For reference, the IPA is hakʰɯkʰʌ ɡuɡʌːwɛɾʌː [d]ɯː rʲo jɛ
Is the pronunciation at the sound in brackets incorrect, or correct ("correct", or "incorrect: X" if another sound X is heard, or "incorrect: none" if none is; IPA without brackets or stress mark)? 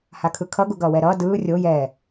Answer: correct